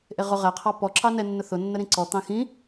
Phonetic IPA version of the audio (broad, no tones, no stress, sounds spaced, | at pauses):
ʔ e ʁ ʊ ʁ ɛ qʰ ɑ p ɔ ǁ ɑ n ɛ nː ʊ θ ʊ nː ə ɾ ĩ ǀ ɔ t̪ ɑ̃ x ĩ